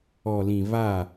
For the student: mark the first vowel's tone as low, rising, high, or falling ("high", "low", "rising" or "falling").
low